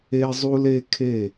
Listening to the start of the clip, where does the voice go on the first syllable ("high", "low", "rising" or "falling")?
high